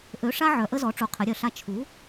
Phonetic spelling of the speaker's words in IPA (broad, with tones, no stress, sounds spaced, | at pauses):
ʔ ø˨˥ ʂ a˦ ʕ œ˨˥ ʔ ə˦ z ɔ˨˥ ʈ͡ʂ u˨˥ qʰ ɘ˨˥ ɾʲ œ˨˥ ɬ a˦ t͡ʃʰ u˨˥